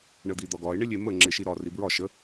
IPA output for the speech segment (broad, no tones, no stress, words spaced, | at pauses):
ɳəd̪id̪ɒɡɒɪ̯ ɳɪlʲemə ŋ͡ǁɪʃiɾɒ ribɹɒ ʃə